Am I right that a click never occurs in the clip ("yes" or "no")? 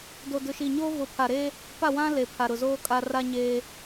yes